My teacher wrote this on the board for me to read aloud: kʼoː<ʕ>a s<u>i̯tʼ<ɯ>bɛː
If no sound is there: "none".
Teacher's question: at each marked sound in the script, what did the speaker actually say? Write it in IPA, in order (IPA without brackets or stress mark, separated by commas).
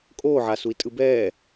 ʕ, u, ɯ